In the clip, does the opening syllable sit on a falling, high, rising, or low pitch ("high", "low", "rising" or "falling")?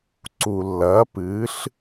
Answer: low